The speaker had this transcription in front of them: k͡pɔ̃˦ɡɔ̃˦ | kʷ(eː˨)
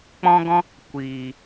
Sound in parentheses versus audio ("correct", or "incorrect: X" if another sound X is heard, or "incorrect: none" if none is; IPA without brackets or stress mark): incorrect: iː˨